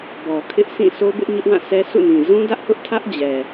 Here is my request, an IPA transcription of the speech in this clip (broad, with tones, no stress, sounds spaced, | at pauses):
b ɔ˨ kʰ ɪ˦ ʔ s ĩ˦˨ sʰ o˦ b ɪ˦ ʔ ɲ ʊ˦ ʔ w ã˦˨ sʰ ɛ˦ sʰ ṵ˦˨ n ĩ˨ z ũ˦ d ä˦ ʔ h ʊ˦ ʔ tʰ ä˦ ʔ d͡ʑ ɛ˨